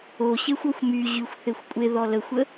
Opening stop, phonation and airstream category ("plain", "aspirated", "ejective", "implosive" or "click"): ejective